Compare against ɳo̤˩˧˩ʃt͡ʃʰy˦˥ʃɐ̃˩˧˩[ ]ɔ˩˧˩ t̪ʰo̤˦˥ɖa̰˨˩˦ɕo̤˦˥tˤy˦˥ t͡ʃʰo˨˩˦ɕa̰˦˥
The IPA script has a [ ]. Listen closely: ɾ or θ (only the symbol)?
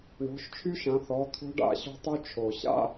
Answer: θ